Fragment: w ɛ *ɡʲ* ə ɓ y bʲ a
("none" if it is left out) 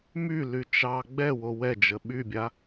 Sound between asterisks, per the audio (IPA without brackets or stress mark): d͡ʒ